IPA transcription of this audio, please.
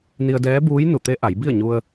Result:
ni˧ə̯dɛː˧˥buː˧˥j nu˧˩t̪e˧˥ ʔa˩˧j bi˥˨ə̯ɲu˧ə̯

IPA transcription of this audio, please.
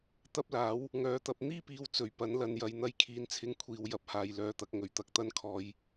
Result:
t̪ɐ˥p̚laː˨˥w | ŋœː˨˧t̪ɐ˧p̚ n̪iː˥piː˨˧w t͡sɵ˨˩ɥpɐ˨˥nlɐ˨njɐ˨˧j n̪ɐ˧jkʰiː˨˥nt͡sʰɪ˧ŋ kʷʰiː˨wjɐ˨˥p̚haː˨j lœː˨t̪ɐ˨˥k̚ ŋɵ˨˩ɥt̪ɐ˨˥k̚t̪ɐ˥nkʰɔː˧j

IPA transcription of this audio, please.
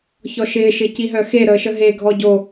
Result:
çɔʃɪː ʃɪciɦœxe ɾəːʃəɦe ɡʱɔɟo

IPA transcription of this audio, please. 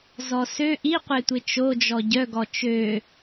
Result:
zɔsø ʔiqʷetʷɪ t͡ʃod͡ʒɔ ɟœɡɔ t͡ʃø

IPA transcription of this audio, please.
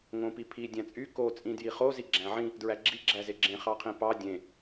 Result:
ŋõpipʰi dʲæ̃t͡sʼy ko t͡sʼĩdjiχo ziɡ͡ǁæ̃ʕĩ | dɹæɡ͡ǁi ɡ͡ǁæzeɡ͡ǁẽ χɑqʰĩpɑ dʲẽ

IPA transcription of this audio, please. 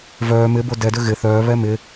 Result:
vœː mɪbo dɛdʏ ɣɪ θœːβɛ mɪ

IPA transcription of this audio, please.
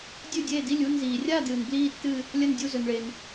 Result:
dʲʉ˥˨dʲeː˥˨di˥˨lʲ u˥˨nziː˩rʲa˥˨dɨː˩n bliː˥˨tːɨ˥˨ | lʲɐ˥˨ndʲu˥˨zɵ˩nɭe˩n

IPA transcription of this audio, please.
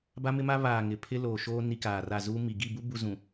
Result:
ba˦mɪ˦ma˦ βaː˨ ŋɪ˨ pʰɪ˦loː˨ʃoː˦ ni˦kaː˨ra˦˨ zuː˦ mi˨ ɡi˦˨bu˦ bu˦ zũ˨

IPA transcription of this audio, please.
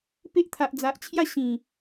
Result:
pe˦ʔt̪ʰa˨ʔd͡za˨ʔt͡ɕʰja˥˧ ɕĩ˨˩

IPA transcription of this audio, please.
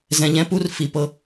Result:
zɛ̃˧ʎɛ̃˦pu˦r fi˨pɤ˧

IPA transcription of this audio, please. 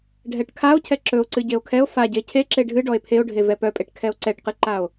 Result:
ɖʱɛʈkʰao̯ cʰɛǁɵo̯ǀɨ ɟeo̯kʰɛo̯ faɟe cʰeǁe ɖʱɨ ɖɔe̯pʰeo̯ɖʱe vɛpœpʼeʈ kʰɛo̯ǀɛʈqɨǃao̯

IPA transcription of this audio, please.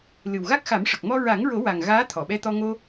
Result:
lɨ˨˩wɣa˦˥k̚xa˨˩˦mʂə˨˩k̚ mɔ˧ɹa˨˩˦ŋɹo˨˩˦ wa˨˩ŋ ɣaː˧˥t̪ʰɔ˨˩˨ɓɛ˧t̪ɔ˧ ŋo˧

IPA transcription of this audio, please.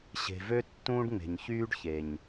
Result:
ɕe̤˨vø˦ tːũː˦ɖŋ͡me̤˨ɲçyː˦ɖ çe˨ɲ

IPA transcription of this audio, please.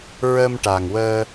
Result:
ɹə˧mʈa˨˩ŋ wəː˧

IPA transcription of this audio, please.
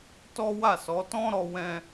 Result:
tɔ˦wa˦˨sɔ˨˦ tɔ̃˦ɾɔ˧wɛ̃˧

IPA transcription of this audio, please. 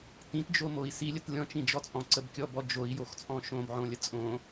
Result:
tĩtd͡ʒomoi̯ silʲət lʲɔ̃t͡ʃĩd͡ʒɔ t͡sʼɔ̃ǀəbkʲɔbɔ d͡ʒoi̯joxt͡sʼɔ̃ ʃõbʕõlʲə t͡sʼõ

